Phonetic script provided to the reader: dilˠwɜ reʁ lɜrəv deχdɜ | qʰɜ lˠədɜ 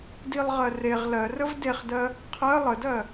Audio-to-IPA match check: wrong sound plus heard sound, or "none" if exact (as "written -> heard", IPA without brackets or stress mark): w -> ʁ